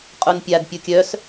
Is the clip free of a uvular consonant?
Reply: no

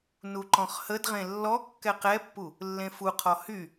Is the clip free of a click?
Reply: no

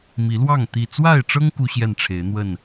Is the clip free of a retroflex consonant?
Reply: no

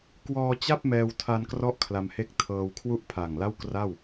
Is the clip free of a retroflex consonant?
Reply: yes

